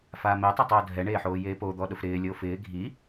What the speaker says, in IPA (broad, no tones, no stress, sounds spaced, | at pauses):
f aː m ɪː tˤ a tˤ oː dʱ ɛ ɳ eː ħ oː j eː p o d̪ ɔ ɗ ʊ f ɾ ɪː lʲ o f ɪː ɡʱ i